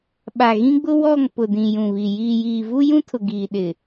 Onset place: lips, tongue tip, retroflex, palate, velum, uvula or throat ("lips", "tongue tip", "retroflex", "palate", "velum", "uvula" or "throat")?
lips